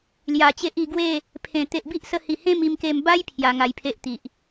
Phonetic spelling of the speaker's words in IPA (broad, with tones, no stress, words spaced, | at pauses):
lja˨˩t͡ɕe˦ʔi˧ ɡwe˥˧ | pʰẽ˨˩ t̪e˨ʔbi˦ʔsə˧hi˨˩ hẽ˥˧mi˧mke˧m ba˦j pʰja˧ŋa˧jpʰe˦ʔt̪i˨ʔ